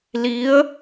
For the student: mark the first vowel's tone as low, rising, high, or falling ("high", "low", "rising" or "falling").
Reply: rising